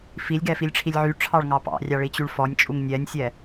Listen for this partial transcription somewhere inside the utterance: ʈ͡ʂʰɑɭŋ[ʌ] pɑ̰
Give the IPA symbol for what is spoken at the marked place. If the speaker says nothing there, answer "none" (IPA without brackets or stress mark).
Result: ɑ